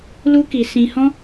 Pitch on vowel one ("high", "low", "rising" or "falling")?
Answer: high